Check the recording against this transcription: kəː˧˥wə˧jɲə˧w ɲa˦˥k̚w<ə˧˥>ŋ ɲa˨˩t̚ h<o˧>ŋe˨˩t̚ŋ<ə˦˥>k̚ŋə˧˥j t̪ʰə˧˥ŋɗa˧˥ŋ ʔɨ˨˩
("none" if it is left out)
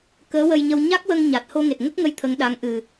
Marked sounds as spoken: ə˧, o˧, ə˦˥

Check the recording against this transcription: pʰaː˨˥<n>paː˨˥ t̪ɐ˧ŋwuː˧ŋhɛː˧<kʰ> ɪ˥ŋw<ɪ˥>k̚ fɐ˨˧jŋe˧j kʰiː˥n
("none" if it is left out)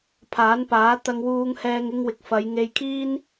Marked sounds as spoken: n, ŋ, ɪ˨

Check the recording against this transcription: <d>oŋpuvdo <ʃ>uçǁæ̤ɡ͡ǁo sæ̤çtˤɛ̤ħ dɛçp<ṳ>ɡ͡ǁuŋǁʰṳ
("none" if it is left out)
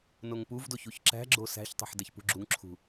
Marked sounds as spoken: n, ç, ṳ

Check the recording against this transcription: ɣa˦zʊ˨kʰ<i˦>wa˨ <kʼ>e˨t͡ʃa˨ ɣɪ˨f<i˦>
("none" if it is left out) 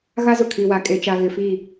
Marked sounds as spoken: i˨, kʼ, i˦˨

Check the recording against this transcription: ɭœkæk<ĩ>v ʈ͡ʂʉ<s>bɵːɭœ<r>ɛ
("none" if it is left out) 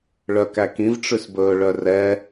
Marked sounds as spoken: ĩ, s, r

